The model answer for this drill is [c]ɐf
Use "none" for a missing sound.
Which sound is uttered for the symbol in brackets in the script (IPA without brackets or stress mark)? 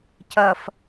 c